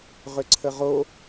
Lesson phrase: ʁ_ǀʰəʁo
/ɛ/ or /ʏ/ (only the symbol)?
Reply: ʏ